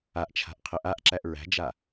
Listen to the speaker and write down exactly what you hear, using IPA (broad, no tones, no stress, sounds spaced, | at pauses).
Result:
a ʔ t͡ʃʰ a̤ ʔ qʰ ə ʔ a ʔ ǁ æ ʔ ɹ æ̤ d͡ʒ a